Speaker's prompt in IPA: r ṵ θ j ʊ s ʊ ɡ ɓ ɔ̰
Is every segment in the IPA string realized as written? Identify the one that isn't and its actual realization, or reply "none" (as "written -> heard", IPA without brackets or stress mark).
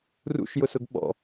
θ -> ʃ